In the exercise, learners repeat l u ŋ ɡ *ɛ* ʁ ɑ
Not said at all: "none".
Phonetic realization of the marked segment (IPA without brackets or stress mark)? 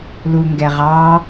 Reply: ɛ